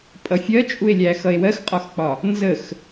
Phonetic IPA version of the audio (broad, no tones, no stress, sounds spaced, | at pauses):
pʼ ʌ fʲ ɜ t͡ʃʼ u e̯ lʲ æ x ʌ e̯ w ɜ x qʼ ɒ x k͡p ɒ | n z ə x